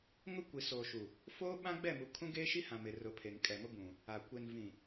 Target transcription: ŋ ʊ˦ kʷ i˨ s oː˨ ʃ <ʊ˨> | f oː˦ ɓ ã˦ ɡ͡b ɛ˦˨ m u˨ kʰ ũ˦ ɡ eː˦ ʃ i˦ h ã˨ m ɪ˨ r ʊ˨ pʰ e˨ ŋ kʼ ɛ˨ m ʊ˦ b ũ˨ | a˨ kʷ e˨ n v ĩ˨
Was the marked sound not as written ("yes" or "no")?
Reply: yes